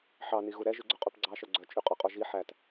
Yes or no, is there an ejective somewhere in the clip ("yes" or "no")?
yes